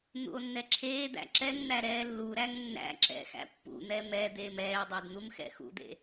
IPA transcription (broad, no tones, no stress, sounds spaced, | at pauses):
n̪ ṵ o̯ nː ɛ ǁʰ eː d̪ æ̰ ǁ ɛ ŋ n̪ æ ɾ ɛː lː u ɾ æ ŋ nː æ̰ ǁ ɛ̰ x æ̰ pː ṵ n̪ ɛ m ɛ d̪ eː m ɛː e̯ dˤ ɛ d n̪ u m x ɛ̰ x ṵ d̪ ḛ